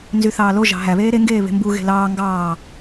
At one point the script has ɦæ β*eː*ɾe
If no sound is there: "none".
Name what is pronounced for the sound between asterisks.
eː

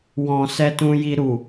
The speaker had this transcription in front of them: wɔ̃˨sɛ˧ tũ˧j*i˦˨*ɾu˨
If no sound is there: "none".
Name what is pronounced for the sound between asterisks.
i˧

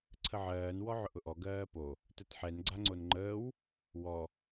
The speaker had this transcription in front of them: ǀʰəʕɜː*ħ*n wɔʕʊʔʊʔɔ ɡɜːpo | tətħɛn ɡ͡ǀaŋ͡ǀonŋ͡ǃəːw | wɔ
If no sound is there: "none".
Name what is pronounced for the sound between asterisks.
none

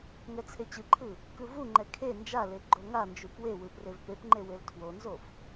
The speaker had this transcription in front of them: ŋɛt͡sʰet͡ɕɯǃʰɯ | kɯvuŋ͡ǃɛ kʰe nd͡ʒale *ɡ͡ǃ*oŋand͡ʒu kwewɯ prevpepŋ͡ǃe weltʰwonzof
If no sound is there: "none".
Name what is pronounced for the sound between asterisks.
ɡ͡ǃ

